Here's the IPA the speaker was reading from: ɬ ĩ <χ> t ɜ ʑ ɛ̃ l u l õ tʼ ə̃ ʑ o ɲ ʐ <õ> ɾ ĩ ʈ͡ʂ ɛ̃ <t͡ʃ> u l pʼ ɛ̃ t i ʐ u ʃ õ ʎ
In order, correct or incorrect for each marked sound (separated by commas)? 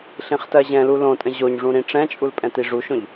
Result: correct, incorrect, incorrect